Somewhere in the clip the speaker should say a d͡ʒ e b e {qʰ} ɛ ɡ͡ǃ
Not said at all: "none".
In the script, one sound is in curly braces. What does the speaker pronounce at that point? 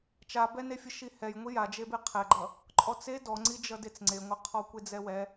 qʰ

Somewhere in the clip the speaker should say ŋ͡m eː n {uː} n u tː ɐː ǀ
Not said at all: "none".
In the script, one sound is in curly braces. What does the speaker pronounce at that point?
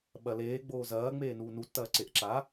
uː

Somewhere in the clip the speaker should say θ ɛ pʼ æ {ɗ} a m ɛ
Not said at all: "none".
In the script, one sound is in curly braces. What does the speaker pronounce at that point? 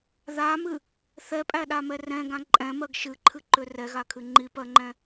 ɗ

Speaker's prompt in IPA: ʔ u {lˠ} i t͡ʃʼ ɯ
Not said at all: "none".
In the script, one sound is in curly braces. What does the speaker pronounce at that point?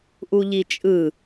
ʎ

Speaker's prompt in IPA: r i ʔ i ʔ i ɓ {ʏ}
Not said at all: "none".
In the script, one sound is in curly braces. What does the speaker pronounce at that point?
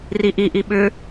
ʏ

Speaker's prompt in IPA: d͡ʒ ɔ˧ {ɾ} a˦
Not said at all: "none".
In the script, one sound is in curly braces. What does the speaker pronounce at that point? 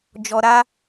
ɾ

